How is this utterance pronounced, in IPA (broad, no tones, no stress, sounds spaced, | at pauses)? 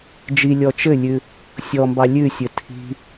d͡ʒ i lʲ ɔ t͡ʃ ɘ lʲ ʉ | sʲ ɔ m b ɑ lʲ ʉ sʲ ɘ tʰ i̤